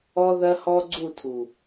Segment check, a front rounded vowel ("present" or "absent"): absent